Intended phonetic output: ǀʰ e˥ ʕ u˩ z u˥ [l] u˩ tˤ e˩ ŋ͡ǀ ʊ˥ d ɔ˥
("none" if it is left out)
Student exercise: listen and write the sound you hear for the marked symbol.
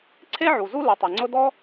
l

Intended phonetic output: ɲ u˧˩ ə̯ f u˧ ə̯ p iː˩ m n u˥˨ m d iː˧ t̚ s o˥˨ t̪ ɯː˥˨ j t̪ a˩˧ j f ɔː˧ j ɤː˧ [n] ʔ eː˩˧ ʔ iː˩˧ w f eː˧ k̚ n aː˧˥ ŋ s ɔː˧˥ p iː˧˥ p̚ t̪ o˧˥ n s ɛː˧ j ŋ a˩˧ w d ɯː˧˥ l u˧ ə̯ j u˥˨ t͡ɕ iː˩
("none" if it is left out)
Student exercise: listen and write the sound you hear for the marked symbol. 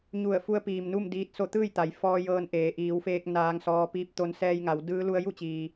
n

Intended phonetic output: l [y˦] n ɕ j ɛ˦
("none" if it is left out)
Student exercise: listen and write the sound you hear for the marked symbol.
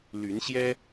y˨˦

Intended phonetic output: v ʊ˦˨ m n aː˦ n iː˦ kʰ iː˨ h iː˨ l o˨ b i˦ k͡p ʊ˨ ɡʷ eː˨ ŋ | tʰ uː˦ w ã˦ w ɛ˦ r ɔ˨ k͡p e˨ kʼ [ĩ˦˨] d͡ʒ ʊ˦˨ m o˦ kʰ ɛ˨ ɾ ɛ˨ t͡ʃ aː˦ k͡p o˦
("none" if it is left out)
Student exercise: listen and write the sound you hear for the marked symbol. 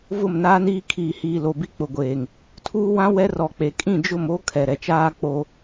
ĩ˦˨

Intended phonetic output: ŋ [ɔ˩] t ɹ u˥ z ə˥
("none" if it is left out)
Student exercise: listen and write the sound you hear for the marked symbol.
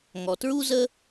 ɔ˩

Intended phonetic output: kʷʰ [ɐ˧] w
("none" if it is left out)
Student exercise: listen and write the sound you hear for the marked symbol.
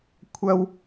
ɐ˧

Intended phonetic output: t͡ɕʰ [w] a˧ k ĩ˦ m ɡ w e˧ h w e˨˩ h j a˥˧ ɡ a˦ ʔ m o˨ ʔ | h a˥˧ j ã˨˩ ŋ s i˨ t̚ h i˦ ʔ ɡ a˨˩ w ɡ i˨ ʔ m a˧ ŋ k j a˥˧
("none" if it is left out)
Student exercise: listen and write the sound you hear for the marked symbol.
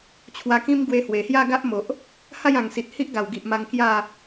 w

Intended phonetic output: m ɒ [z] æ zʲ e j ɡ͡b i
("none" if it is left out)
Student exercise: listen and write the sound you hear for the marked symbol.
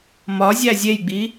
zʲ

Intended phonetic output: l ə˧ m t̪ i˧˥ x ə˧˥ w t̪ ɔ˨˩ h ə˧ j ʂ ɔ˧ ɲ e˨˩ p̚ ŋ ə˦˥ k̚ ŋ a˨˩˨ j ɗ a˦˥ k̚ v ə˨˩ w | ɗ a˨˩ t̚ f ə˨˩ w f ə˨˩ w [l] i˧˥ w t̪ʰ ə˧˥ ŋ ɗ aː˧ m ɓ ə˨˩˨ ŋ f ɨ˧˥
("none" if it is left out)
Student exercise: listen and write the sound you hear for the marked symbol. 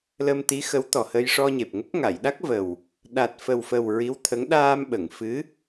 ɹ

